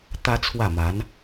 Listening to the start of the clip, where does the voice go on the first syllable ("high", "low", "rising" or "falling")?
high